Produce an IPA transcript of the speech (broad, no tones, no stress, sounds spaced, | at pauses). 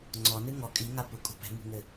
ŋ͡ǀ ɔ n ɨ ŋ ɔ kʼ i ŋ a p u kʼ ṳ p ɛ̤ m ṳ ŋ ɘ